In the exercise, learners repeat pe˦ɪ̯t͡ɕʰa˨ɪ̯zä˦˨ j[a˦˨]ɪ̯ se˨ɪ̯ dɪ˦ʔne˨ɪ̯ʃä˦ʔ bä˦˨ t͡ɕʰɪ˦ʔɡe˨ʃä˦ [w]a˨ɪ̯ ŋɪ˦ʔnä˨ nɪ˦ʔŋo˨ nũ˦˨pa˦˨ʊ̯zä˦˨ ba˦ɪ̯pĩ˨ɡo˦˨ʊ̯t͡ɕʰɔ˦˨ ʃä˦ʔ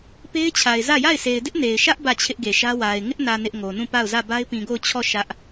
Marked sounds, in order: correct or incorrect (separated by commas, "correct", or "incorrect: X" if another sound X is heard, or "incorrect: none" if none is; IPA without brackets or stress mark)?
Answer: correct, correct